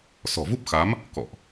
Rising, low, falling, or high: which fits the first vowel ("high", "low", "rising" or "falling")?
low